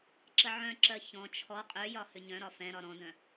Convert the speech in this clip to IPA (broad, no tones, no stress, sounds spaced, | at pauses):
ǁ ə ʕ œ̃ ǁ ɜ ç ɔ̃ t͡ʃʰ ɔ qʼ œ j ɒ h ʏ ɲ œ̃ ɾ ɒ f ɛ̃ ɾ ɒ ɾ ɔ̃ d œ̃